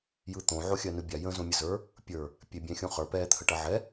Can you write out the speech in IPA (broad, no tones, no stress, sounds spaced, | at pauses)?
j ɯ t̪ õ ʕ o xʲ ɜ n ɯ bʲ a j ə̃ z õ mʲ ə z ə˞ | pʲ ə˞ | pʲ e bʲ ɛ̃ xʲ õ χ ə˞ p ɛ t̪ʰ ə ʈ ɐ ʕ ɛ